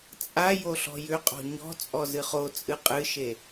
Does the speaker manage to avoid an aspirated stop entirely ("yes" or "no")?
yes